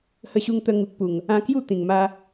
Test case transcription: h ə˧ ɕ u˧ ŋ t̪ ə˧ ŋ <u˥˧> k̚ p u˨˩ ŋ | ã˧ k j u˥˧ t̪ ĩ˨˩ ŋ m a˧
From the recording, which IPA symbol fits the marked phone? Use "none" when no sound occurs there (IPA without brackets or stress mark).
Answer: u˨